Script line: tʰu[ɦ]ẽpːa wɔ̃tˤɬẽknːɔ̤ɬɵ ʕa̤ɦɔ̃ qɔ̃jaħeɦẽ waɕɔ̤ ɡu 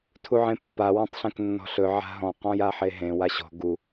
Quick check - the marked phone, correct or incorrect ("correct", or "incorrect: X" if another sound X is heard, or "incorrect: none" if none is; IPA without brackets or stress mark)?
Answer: incorrect: ʕ